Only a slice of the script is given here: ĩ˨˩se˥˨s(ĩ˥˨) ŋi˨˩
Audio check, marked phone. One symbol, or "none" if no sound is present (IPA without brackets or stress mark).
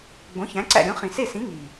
ĩ˨˥